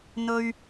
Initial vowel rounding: rounded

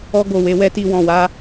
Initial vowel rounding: rounded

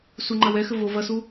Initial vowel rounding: rounded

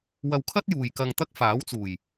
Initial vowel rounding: unrounded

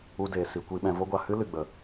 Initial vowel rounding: rounded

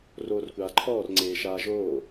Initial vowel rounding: rounded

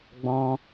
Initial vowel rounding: rounded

